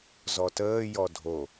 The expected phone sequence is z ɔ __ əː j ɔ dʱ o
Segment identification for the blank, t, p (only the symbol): t